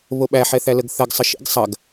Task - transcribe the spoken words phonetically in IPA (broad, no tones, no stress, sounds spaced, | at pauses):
β o ɓ æ ħ ɛ θ æ l ə ɡ θ ɐ ɡ sˤ ə ʃ ḭ ɡ sˤ ɐ ɡ